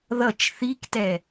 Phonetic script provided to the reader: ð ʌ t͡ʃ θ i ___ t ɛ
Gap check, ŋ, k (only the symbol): k